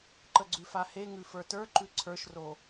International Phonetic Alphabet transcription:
ǃəɡ͡ǀʉfahe ŋʉfə˞tə˞ ǃʉǀʰə˞ʃro

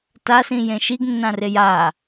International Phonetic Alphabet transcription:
tasĩ jẽʃiɡnːã reja

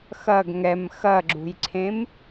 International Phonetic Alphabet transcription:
xɐɡ ŋɛm xɐɡ͡ǁṳjǀʰẽm

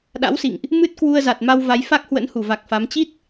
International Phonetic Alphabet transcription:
ɗa̰˧˥wsḭ˧˨ŋʔ | mɨ˦˥t̚kwu˧ə̯za˨˩t̚ ma˧wva˨˦j fa˦˥k̚hwə̰˧˥n hu˧˩va˨˩k̚fa˨˦m t͡ɕi˦˥t̚

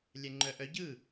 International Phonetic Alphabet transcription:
lʲɛŋ͡ǃœʔœ ɟɯ

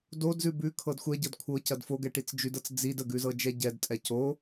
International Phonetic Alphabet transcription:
dodzʉ bʉkʰɤd xʷɛɟɤd kʷʰɤcɐd foɡɛʈit͡s d͡ʒʉdɤt͡s d͡zid əɡʉzɤd͡ʒɛ ɟɛdtʼɛ co

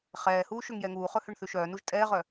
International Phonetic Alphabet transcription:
χɛːhuː ʃøŋjɛŋuːχɵ høɳθʉʃœːnuʒ tʼɛːʁœ

